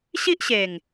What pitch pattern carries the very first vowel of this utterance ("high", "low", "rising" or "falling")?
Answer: high